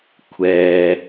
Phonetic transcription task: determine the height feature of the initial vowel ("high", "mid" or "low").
mid